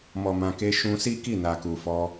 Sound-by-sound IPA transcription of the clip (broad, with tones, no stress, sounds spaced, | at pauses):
m ɔ˨ m ã˨ k e˧ ʃ ũ˧ s i˦ k i˦˨ n a˨ k u˨ f ɔ˧